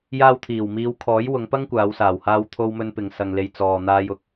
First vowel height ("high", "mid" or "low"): low